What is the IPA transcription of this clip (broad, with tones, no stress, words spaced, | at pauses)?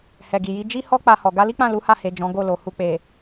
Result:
hɛ˨ɡi˨ji˨˦ d͡ʒi˦hɔ˦ k͡pa˧hɔ˨ ɡa˧li˦k͡pã˦˨ lu˨˦ha˦˨he˨ d͡ʒɔ̃˨˦ɡo˦˨lo˨ hu˨k͡pe˨